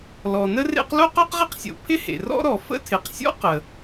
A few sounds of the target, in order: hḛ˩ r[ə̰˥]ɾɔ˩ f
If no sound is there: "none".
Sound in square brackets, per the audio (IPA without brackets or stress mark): ɔ̰˥